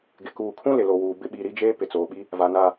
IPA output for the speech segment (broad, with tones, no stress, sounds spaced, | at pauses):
ɡ ɪ˨ k uː˨ kʰ ũ˦ l ɪ˨ l o˨ w uː˨ b ɪ˦ ɓ i˨ ɾ i˦ d͡ʒ eː˦ p ɪ˨ t͡s oː˨ ɓ i˦ | v a˨ n a˨